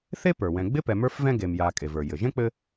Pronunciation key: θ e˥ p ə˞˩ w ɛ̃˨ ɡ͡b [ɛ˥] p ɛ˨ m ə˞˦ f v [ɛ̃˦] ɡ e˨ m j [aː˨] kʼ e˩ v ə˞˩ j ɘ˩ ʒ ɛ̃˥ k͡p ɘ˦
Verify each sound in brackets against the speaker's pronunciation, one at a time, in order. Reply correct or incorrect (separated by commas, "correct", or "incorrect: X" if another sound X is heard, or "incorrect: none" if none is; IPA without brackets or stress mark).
incorrect: ɪ˥, correct, correct